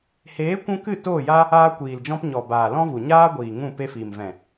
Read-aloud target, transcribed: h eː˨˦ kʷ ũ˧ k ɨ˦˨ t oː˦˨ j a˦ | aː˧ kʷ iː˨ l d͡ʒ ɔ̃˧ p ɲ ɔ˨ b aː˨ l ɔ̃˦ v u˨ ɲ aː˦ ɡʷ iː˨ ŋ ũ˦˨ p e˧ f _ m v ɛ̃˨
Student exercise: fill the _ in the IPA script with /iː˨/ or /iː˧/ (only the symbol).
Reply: iː˨